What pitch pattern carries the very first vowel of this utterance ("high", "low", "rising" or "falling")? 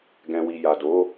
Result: low